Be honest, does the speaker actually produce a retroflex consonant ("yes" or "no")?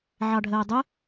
yes